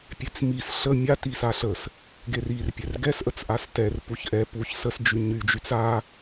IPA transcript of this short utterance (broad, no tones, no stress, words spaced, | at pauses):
pʲet͡smis ɬə mʲati saɬəs | ɡerirpʲɛr ɡɛsʔət͡sʔas tɛr puçʔɛ puç səs d͡ʒyɲyd͡ʒyt͡s a